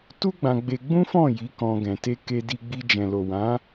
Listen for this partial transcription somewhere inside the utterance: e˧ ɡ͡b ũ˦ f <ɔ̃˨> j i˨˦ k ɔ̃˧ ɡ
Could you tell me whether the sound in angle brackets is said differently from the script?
yes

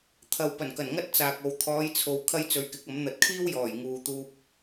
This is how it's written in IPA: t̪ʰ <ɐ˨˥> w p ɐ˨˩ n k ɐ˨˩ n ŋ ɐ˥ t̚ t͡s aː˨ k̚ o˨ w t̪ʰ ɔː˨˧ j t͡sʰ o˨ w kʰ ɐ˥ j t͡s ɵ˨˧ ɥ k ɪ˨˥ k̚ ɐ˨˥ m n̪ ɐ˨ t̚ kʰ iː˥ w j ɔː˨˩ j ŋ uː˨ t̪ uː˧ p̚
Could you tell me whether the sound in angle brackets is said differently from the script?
yes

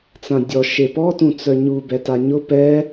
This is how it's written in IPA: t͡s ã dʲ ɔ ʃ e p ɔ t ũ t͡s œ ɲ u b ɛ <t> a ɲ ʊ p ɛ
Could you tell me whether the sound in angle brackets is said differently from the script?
no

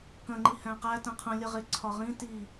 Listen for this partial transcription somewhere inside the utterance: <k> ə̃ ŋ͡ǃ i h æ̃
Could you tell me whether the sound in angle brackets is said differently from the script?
no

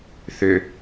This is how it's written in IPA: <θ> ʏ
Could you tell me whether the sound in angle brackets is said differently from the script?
no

